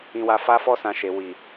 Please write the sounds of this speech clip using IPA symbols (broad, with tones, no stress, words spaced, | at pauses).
ĩ˧wa˧ fa˦fɔ˦sã˧ʃe˨ wi˨